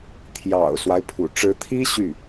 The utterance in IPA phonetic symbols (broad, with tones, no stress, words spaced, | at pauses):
t̪ʰjɑ̰˨˩ʊ̯swa˦ɪ̯pʰṵ˨˩ ʈ͡ʂɻ̩˧˥t̪ʰi˥ ɕy˥˩